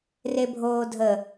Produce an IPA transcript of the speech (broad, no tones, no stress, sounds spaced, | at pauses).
r e bʱ oː dʱ ə